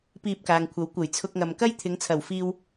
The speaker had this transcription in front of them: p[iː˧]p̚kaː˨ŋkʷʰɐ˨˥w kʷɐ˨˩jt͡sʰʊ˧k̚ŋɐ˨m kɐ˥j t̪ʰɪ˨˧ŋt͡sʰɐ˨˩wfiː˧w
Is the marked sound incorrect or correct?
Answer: correct